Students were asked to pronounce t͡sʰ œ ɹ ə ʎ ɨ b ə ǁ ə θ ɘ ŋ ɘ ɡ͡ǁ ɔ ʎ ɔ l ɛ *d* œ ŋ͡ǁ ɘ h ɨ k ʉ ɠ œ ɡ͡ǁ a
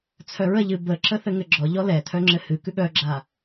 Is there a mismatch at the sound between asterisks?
yes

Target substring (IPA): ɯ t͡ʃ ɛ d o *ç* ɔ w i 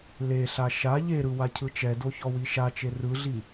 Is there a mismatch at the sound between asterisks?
no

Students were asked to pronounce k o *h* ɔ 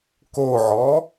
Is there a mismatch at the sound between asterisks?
yes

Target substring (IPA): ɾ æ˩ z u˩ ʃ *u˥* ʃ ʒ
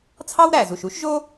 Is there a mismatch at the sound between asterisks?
no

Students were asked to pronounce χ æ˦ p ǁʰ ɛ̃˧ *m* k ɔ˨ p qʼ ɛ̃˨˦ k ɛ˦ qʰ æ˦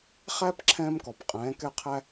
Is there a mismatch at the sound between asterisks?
no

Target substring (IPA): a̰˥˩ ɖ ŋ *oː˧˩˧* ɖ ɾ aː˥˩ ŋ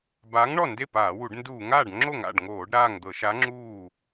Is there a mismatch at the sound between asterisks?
no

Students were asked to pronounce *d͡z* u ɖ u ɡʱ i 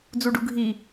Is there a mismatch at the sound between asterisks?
no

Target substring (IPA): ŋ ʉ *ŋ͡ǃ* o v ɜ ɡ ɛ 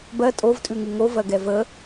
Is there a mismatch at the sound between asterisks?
yes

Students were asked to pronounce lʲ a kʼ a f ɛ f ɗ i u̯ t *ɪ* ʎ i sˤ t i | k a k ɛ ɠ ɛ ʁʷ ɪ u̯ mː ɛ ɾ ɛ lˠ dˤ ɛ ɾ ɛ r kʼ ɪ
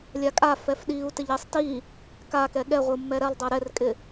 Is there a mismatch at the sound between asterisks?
no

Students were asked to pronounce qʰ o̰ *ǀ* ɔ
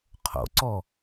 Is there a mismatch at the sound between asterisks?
no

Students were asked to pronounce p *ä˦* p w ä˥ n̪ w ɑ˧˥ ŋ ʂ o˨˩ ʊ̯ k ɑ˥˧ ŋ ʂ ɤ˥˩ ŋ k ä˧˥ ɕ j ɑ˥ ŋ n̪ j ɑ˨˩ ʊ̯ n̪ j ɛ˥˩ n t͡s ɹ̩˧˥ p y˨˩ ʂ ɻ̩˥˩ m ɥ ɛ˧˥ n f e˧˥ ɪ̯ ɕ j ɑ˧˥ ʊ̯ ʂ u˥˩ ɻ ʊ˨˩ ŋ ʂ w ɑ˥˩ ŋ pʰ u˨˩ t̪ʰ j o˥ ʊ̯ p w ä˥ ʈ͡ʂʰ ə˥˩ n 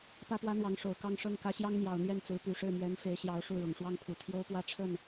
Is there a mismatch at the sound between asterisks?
yes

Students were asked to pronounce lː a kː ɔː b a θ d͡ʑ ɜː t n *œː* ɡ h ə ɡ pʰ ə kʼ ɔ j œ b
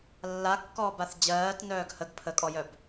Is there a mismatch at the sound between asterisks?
no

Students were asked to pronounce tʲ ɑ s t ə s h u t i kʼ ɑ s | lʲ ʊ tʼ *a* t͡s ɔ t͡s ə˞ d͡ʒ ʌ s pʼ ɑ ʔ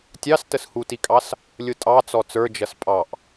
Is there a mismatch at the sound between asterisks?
yes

